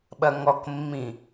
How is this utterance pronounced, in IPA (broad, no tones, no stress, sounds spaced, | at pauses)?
ɓ ɐ ŋ ɔ k mː ĩ